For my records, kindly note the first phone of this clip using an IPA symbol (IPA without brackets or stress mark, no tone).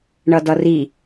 ɳ